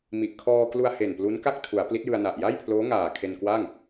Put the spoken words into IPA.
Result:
m i˨˩ ʔ kʰ ɔː˧ k l u˧ a̯ h e˨˩ n p l u˦˥ n k a˥˩ k̚ tʰ u˩˦ a̯ p l i˦˥ t̚ j ɯ˧ a̯ n a˨˩ ʔ j a˥˩ j pʰ l oː˦˥ ŋ aː˨˩ kʰ e˧ n k w a˥˩ ŋ

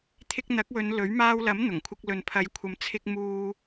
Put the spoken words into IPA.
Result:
t̪ʰ ɪ˧ k̚ n̪ ɐ˨˥ k̚ w ɵ˨˧ n l ɵ˨˥ ɥ m aː˧ w l ɐ˨˥ m n̪ ʊ˨˩ ŋ kʷʰ ɪ˧ k̚ l ɵ˨ n pʰ ɐ˨˧ j kʷʰ ɐ˨˧ m t͡sʰ ɪ˧ k̚ m uː˧

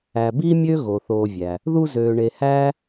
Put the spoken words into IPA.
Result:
æ˨ b iː˥ mʲ ø˥ ɣ o˩ θ oː˨ vʲ æ˩ | ð u˦ z øː˨ ɳ e˨ h æː˥

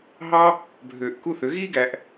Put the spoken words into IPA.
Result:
ɦ ɑ˦ | bʱ øː˨ ʔ k u˦ θ ø˨˦ ɣ iː˦ ɡ æ˧ ʔ

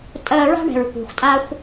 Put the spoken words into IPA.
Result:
tʼ ɜ˧ ɹ a̤˥ ɳ ɛ̤˩ ɹ kʷ ɛ̤˩ xʷ tʼ a˧ xʷ

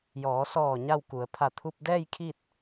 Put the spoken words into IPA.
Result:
j ɔː˩˧ s ɔː˧˩ ɲ a˥˨ w k u˩˧ ə̯ pʰ a˧˩ t̪ʰ u˧ p̚ d ɛː˥˨ j kʰ i˥˨ t̚

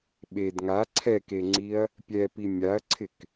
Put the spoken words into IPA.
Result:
ɓ e d ŋ a ǀʰ ɛ k e ŋ͡ǀ i ɐ̯ | pʲ ɛ p i mʲ a ɐ̯ ǀʰ ɪ k

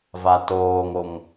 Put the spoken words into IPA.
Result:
v a t oː ŋ o ŋ

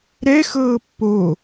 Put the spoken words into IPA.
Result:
ɾ ɛ x ɤː pː o

